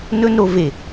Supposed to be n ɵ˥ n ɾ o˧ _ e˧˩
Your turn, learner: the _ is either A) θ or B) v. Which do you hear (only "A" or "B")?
B